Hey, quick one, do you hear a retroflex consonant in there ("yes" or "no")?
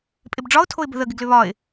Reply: yes